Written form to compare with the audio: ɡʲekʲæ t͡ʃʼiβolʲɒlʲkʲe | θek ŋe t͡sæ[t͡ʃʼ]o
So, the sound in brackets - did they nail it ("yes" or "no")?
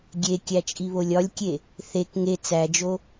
no